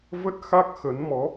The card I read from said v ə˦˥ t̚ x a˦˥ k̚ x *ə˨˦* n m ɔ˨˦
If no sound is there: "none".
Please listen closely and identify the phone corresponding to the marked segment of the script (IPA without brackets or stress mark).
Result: ə˨˦